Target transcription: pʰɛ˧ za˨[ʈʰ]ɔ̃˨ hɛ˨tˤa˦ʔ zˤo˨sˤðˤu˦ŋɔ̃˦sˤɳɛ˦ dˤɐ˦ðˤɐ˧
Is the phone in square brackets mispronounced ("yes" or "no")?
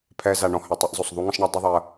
yes